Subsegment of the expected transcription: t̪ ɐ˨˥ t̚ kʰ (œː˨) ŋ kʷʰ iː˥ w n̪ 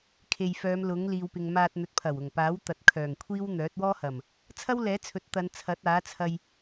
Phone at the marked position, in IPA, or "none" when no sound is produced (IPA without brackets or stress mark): œː˨˩